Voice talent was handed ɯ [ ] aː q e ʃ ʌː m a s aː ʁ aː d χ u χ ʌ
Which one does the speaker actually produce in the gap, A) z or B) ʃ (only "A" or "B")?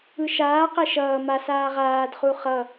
B